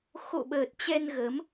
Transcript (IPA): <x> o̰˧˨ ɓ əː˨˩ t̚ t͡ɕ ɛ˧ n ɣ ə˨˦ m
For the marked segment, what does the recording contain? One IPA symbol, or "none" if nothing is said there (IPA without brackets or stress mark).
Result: x